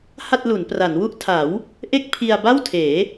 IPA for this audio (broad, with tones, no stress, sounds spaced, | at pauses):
h a˥˩ t̚ l u˩˦ n p r a˩˦ n w u˥˩ ʔ tʰ a˩˦ w | ʔ e˥˩ k̚ pʰ i˧ a̯ b a˥˩ w tʰ eː˩˦